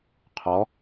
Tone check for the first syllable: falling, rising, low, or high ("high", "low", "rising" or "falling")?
rising